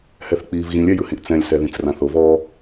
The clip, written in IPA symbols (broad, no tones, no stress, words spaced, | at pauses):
hɛθk͡piːvɣĩlʲ ɛjɯhĩʔt͡sɛ̃lʲ sɛðĩt͡srãθov ɔ